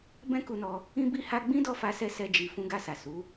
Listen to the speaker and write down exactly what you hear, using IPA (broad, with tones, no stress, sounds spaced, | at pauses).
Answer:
b ɛ̃˦ k u˧ n ɔ˧ | ĩ˦ b i˦ h a˦ ɡ͡b ĩ˦ d ɔ˦˨ f a˧ s ɛ˧ s ɛ˦ d͡ʒ i˧ f ũ˧ ɡ a˧ s a˨ s u˨˦